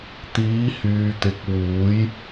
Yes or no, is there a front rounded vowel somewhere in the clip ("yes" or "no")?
yes